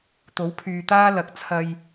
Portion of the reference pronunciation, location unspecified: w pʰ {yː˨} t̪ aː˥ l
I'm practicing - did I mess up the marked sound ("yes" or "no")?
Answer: no